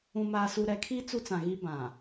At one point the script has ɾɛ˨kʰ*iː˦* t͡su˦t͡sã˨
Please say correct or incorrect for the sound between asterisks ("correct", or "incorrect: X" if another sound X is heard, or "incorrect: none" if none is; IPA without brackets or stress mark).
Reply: correct